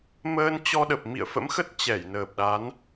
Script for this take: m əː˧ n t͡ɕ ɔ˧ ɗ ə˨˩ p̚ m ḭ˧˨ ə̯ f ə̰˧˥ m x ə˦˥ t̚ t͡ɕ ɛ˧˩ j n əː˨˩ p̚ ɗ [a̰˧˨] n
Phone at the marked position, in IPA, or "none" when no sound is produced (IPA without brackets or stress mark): a˨˦